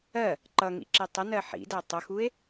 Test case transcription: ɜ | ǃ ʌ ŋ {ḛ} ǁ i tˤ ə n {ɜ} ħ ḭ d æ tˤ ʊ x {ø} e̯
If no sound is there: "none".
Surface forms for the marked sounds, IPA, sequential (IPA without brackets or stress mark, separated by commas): ḭ, ɜ, u